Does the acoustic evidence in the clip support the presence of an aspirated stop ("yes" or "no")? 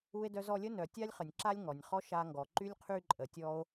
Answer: yes